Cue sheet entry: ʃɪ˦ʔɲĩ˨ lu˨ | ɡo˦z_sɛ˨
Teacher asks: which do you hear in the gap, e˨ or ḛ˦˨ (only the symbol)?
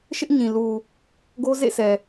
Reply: ḛ˦˨